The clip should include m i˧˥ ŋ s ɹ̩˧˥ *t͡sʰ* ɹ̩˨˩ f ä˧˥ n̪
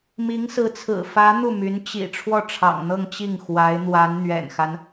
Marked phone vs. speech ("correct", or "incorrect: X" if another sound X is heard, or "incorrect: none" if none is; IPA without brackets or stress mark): correct